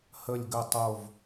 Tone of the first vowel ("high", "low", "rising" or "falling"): falling